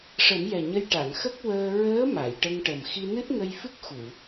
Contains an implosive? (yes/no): no